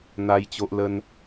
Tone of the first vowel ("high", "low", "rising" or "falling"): high